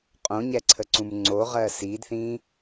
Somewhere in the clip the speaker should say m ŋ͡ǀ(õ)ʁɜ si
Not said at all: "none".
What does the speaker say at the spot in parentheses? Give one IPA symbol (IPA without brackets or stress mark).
o